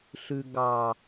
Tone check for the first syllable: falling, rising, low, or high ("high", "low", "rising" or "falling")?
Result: low